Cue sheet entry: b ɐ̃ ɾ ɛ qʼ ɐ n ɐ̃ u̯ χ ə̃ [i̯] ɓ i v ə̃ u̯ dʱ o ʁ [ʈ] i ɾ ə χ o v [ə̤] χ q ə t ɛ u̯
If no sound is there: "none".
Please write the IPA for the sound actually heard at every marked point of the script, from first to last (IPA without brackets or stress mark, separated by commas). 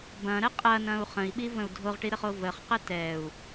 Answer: i̯, ʈ, ə